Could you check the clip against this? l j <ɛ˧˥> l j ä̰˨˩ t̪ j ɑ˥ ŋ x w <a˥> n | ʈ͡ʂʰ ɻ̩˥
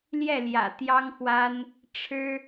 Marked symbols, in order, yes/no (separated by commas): no, yes